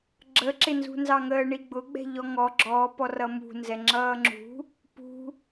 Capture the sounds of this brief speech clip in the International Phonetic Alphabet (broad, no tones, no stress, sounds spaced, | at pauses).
ɡ͡ǁ ə ǁ ɪ n z ṳ n z ɑ ŋ əː ɳ i ɡ͡b ʊ ɡ͡b ɛ̤ ʎ ɔ ŋ ɔ ɡ͡ǁ ɔː p ɔ r ʌ m ṳ n z ɛ ŋ͡ǁ ʌː ŋ͡ǁ ṳ | p ṳ